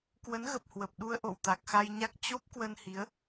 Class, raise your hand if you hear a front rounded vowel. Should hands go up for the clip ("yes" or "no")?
no